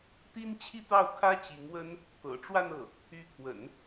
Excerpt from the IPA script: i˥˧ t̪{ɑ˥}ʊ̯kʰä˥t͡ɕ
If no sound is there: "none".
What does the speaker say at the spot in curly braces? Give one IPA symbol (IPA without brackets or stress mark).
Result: ɑ˥˩